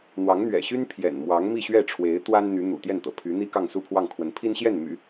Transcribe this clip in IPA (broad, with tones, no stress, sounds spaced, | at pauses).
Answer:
n̪ w ɑ˧˥ ŋ n̪ ɥ ɛ̰˨˩ ɕ y˥ n pʰ j ɛ̰˨˩ n m w ɑ˧˥ ŋ m i˥˧ ɕ ɥ ɛ˥˩ ʈ͡ʂʰ w e˧˥ ɪ̯ t̪ w a˥ n n̪ y˧˥ n̪ ṵ˨˩ t̪ j ɛ˥˩ n t̪ ɤ̰˨˩ pʰ y˧˥ n̪ i˥ k ɑ˥˧ ŋ s u˥˧ pʰ w ɑ˥˩ ŋ kʰ w ə˧˥ n pʰ i˥ n ɕ j ɛ˥˩ n m y̰˨˩˦